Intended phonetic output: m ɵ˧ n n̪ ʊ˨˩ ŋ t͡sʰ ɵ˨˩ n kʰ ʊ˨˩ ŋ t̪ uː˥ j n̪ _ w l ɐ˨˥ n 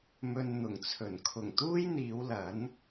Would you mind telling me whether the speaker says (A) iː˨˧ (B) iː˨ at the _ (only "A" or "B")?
A